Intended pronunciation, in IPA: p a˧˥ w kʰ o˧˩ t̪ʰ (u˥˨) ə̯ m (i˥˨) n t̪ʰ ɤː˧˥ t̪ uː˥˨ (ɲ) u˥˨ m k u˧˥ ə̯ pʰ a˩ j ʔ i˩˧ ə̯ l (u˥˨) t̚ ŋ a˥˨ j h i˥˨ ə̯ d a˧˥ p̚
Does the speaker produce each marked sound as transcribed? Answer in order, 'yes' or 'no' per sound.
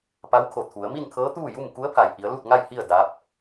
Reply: no, yes, no, yes

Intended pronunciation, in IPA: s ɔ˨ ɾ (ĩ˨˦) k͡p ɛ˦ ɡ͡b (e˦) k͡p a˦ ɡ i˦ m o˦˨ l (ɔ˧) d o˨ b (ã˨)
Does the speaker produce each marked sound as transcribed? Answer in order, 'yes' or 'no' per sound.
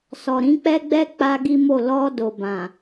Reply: yes, no, yes, yes

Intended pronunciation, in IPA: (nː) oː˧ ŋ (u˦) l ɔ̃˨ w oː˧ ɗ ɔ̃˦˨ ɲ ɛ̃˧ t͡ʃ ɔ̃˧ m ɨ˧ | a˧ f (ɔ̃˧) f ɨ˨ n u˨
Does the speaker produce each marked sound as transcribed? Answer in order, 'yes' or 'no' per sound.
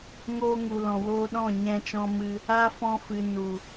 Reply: no, no, yes

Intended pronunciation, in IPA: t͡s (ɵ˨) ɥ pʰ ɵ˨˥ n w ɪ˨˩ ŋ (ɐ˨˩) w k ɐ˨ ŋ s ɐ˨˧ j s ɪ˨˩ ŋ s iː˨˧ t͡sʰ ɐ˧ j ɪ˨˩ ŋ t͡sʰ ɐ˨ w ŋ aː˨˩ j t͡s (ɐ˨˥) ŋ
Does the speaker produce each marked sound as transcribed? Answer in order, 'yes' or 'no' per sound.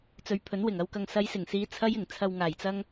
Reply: yes, no, no

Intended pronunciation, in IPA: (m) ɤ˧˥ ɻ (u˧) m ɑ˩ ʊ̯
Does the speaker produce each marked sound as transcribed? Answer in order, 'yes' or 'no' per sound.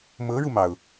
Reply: yes, yes

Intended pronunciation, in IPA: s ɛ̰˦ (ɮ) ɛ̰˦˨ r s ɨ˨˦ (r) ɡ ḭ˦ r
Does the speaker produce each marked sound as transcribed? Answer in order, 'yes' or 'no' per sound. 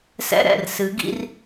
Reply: no, no

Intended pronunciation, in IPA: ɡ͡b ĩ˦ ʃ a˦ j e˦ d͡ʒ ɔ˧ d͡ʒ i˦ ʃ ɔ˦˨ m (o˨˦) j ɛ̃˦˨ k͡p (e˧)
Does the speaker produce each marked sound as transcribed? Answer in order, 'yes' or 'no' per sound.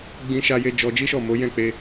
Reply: yes, yes

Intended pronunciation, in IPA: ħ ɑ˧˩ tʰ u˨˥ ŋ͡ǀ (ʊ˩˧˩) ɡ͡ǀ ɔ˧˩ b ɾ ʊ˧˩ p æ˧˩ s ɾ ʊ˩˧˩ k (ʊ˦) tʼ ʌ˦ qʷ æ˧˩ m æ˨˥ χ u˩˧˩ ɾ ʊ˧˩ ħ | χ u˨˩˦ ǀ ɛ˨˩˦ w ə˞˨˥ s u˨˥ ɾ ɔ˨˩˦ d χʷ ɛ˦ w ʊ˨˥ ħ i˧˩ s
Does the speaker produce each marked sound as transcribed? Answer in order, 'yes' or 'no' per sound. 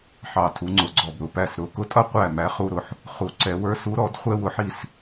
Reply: yes, yes

